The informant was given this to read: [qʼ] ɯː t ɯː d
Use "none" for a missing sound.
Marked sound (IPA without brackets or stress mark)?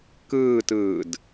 k